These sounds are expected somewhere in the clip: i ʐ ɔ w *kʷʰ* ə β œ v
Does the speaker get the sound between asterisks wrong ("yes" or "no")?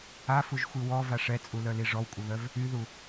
yes